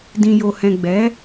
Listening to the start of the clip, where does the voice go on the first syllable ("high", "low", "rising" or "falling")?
low